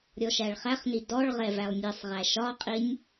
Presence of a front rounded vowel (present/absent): absent